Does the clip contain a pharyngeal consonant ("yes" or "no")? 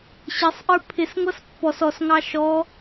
no